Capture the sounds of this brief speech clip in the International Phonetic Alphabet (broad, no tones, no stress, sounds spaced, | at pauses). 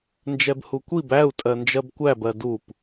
n d͡ʒ ɛ b h u kʷ i b æ u̯ tʼ ɜ n d͡ʒ ɜ b kʷ æ b ɜ d u p